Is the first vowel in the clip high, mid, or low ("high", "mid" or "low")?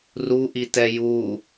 high